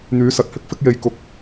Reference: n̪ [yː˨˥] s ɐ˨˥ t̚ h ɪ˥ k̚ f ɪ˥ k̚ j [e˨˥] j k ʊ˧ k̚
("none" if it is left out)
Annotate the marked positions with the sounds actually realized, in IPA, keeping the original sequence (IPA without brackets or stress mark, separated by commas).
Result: yː˨˥, e˧